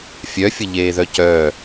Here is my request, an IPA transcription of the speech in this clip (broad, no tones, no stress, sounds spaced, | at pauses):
fʲ œ fʲ ə ʎ eː ð œ c œː